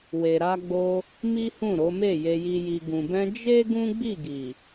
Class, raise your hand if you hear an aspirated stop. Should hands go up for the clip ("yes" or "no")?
no